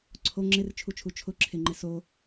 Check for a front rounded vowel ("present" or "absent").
absent